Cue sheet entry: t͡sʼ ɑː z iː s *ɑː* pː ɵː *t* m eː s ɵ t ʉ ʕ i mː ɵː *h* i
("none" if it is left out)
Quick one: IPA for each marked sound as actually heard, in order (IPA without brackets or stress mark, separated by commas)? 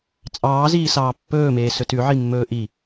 ɑː, none, ʔ